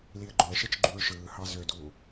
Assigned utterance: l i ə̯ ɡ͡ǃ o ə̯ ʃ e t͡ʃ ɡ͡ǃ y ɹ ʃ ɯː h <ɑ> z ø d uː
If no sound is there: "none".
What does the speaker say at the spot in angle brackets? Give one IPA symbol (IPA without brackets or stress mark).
ɑ